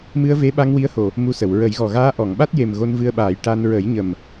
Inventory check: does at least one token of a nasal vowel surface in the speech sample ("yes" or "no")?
no